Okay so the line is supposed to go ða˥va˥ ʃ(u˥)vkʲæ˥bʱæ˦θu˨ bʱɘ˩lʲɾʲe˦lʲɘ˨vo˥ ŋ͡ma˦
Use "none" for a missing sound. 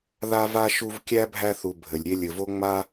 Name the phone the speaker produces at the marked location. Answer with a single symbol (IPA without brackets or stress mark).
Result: u˦